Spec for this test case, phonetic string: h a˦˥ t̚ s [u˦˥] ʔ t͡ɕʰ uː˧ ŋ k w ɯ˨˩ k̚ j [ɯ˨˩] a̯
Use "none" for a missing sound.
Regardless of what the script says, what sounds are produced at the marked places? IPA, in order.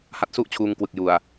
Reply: u˥˩, u˨˩

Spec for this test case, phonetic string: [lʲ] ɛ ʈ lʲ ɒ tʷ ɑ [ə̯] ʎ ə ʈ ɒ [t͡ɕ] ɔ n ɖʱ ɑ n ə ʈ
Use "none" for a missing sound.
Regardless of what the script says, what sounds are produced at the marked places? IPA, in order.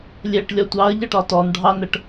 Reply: lʲ, ə̯, t

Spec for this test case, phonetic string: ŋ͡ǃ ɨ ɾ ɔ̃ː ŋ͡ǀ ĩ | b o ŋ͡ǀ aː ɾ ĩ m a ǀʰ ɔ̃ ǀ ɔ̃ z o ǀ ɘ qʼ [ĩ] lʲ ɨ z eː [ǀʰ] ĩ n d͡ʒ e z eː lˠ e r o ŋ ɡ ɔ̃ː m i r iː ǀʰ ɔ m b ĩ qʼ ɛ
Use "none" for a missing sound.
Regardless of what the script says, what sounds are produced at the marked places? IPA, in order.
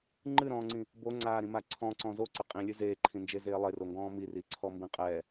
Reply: ĩ, ǃʰ

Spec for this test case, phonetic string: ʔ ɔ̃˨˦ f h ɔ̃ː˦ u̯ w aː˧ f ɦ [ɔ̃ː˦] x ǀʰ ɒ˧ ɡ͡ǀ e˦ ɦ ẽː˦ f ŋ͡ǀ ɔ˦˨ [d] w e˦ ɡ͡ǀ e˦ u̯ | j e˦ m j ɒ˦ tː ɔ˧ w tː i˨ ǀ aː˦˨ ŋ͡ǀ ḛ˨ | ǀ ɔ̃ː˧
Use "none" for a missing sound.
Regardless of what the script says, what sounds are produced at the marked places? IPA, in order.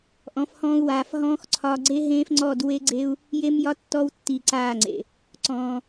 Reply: ɔ̃ː˦, d

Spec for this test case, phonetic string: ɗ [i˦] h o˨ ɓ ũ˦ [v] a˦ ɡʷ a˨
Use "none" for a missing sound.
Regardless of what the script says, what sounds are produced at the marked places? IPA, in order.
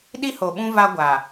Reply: i˦, v

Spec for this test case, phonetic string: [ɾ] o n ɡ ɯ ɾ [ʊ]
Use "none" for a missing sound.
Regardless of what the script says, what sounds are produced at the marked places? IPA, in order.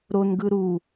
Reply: ɾ, u

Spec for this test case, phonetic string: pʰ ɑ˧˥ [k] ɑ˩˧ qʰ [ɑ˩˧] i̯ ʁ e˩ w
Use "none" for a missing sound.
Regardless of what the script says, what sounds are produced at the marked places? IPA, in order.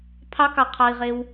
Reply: k, ɑ˩

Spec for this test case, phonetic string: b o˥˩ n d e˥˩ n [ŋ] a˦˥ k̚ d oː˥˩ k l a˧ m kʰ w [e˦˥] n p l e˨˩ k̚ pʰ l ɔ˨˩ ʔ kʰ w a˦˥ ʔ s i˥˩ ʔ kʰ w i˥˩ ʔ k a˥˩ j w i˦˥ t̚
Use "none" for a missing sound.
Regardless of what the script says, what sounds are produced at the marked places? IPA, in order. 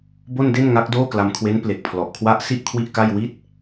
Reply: ŋ, e˦˥

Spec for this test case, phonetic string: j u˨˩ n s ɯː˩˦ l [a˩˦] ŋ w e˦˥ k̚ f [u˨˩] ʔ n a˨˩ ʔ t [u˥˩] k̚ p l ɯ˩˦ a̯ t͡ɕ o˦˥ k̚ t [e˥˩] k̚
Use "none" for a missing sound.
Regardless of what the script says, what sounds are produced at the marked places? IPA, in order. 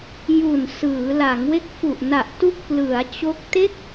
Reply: a˩˦, u˨˩, u˥˩, e˥˩

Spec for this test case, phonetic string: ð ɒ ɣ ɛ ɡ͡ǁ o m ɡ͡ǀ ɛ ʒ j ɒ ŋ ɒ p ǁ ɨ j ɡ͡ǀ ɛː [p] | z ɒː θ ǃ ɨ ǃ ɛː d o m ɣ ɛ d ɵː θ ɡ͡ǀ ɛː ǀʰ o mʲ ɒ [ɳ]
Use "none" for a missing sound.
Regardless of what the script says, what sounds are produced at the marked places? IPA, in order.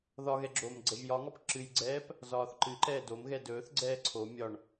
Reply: p, ɳ

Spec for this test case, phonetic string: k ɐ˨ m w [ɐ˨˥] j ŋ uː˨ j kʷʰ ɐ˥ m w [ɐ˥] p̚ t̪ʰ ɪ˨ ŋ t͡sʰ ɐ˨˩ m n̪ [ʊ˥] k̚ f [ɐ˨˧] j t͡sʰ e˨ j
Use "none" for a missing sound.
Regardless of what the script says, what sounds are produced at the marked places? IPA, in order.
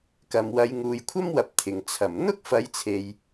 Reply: ɐ˨˧, ɐ˨˥, ʊ˥, ɐ˨˧

